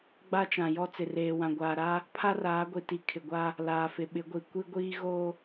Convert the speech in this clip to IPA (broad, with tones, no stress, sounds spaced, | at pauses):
ɡ͡b a˦ t͡ʃ ã˨ j ɔ˦ t͡s ɪ˨ r eː˨ w ã˨ ɡʷ aː˨ ɾ a˦ | pʰ a˦ r aː˨˦ ɡʷ i˨ t i˨ kʰ ɪ˨ ɡʷ a˦ | l aː˨ f ɪ˨ ɓ ɪ˨˦ ɡʷ i˨ kʷ i˦ ɡʷ iː˦ ɣ oː˦